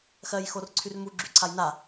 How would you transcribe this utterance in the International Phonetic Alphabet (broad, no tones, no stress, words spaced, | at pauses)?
xɜj xorǀʰyrmu ɡ͡ǁyǀʰajna